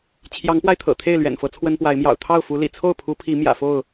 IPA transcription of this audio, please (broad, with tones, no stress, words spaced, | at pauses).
t͡ɕʰjɑ˨˦ŋpwa˧ɪ̯t̪ʰɤ̰˨˩ t̪ʰe˥˨ɪ̯lɥɛ̰˨˩nfɤ˨˦ t͡sʰwə˦npwa˨˦ɪ̯ mjɑ̰˨˩ʊ̯t̪ʰɑ˥˨ʊ̯fu˨˦ lḭ˨˩ t͡sʰo˥˨ʊ̯pʰu˨˦ pʰi˨˦ mjä̰˨˩fo˥˨ʊ̯